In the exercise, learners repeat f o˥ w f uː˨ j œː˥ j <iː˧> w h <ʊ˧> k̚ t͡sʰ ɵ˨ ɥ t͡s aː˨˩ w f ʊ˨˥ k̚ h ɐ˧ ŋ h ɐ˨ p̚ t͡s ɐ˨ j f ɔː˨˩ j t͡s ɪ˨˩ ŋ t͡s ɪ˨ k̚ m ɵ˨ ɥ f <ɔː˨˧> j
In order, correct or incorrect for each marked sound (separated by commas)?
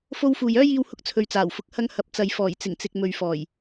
correct, correct, incorrect